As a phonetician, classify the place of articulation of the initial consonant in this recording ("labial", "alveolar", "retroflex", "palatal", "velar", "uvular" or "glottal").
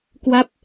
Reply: velar